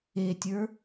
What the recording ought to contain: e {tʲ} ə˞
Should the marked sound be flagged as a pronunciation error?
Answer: no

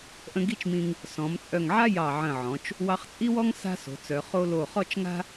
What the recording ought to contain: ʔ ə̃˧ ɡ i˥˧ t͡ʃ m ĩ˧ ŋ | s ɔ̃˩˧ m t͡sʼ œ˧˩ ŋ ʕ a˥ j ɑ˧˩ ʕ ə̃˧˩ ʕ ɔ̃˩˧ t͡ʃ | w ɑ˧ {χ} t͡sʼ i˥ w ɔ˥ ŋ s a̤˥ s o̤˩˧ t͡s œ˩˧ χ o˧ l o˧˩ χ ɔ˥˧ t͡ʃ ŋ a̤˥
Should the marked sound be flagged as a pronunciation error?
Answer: no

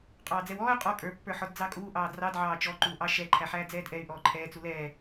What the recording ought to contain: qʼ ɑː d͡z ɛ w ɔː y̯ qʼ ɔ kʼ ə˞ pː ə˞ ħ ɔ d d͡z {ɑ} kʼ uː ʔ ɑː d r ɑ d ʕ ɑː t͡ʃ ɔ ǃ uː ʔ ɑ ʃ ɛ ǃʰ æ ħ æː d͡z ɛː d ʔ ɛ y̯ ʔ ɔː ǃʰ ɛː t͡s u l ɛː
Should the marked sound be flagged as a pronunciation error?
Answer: no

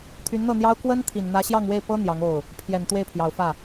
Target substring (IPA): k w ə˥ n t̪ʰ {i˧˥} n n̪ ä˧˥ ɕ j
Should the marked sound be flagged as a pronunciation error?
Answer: yes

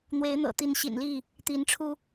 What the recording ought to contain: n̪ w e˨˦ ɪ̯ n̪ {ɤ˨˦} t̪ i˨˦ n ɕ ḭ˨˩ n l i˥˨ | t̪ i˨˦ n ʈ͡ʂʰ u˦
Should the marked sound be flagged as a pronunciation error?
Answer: yes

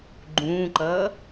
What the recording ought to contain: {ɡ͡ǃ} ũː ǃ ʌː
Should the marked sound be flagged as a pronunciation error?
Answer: no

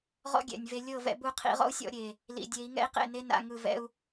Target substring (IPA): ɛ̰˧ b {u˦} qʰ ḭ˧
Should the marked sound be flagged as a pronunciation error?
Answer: yes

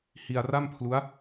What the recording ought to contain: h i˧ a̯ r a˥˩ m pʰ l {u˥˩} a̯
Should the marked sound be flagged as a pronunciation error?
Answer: yes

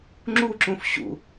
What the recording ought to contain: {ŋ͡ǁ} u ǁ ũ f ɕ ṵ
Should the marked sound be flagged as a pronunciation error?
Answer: no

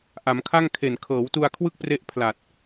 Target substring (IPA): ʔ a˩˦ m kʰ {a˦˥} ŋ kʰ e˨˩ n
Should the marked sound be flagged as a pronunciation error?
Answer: yes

